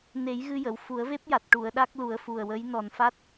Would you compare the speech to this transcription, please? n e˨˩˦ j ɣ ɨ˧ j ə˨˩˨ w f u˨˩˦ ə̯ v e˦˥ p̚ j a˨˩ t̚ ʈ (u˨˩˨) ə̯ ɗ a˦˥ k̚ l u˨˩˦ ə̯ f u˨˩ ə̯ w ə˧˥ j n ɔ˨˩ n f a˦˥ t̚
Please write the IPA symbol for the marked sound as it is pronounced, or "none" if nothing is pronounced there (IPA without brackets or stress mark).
u˨˩˨